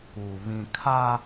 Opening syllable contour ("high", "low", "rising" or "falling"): low